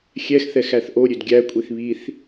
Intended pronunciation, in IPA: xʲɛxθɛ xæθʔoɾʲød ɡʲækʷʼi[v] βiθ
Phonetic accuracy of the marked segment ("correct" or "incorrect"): incorrect